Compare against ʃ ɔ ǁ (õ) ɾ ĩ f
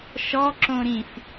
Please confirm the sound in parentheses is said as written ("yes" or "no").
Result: yes